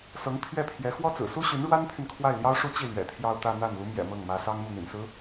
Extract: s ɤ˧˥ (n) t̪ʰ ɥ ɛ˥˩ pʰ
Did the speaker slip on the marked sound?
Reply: yes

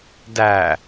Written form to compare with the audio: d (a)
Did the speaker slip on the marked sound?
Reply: yes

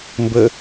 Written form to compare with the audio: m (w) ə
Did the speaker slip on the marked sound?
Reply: yes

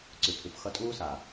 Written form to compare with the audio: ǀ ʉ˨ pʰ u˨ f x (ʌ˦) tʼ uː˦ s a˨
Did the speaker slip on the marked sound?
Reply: yes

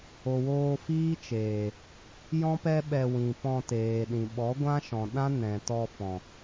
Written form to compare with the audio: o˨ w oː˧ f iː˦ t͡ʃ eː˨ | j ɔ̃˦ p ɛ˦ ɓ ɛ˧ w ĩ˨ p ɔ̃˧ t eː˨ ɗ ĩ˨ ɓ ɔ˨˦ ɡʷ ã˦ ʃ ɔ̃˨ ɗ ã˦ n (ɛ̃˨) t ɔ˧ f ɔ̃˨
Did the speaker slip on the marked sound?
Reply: no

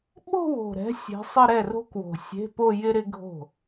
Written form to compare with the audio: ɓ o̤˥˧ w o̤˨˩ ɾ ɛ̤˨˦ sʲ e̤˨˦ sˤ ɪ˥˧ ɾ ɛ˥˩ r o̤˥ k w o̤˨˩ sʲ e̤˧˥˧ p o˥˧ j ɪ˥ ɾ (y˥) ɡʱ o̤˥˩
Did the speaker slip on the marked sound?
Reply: yes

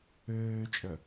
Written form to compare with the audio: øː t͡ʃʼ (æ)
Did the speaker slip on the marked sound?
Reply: yes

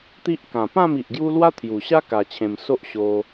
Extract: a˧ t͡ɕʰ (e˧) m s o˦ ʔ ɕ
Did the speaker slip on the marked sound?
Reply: yes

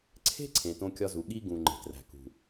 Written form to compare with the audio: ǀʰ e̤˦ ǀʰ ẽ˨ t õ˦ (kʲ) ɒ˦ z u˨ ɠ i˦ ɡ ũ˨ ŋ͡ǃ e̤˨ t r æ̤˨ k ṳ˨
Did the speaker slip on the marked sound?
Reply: no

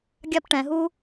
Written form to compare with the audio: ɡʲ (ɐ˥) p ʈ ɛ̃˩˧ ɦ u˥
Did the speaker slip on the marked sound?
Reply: yes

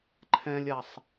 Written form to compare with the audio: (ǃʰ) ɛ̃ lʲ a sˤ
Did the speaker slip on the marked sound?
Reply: no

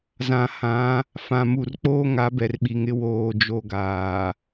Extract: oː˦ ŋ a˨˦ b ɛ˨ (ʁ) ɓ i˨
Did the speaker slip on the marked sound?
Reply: yes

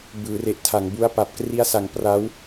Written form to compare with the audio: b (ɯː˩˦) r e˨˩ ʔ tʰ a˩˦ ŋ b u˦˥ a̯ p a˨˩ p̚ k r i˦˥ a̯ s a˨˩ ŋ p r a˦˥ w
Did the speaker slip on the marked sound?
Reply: no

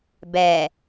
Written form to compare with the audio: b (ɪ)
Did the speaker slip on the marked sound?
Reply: yes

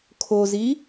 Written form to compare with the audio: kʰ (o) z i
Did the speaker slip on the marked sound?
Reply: no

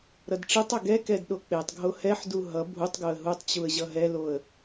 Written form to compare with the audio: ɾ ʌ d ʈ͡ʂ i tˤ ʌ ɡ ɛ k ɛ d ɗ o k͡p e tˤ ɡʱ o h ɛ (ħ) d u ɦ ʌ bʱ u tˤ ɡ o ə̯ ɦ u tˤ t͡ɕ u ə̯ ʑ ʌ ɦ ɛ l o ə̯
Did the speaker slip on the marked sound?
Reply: no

